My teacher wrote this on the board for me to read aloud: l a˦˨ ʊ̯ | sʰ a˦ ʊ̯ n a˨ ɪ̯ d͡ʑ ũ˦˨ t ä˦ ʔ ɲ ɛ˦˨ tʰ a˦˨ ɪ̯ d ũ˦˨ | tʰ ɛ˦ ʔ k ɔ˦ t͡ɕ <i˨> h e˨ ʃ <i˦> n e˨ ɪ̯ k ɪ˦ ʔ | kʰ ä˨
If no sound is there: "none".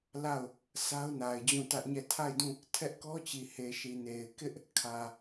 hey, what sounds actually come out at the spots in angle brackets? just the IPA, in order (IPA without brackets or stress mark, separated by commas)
i˨, i˨